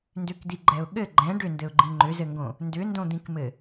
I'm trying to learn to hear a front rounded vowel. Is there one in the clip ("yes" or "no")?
yes